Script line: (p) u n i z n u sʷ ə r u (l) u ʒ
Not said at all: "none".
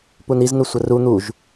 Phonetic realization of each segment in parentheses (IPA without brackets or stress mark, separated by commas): p, n̪